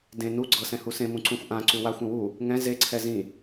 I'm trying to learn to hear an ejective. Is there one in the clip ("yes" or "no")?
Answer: no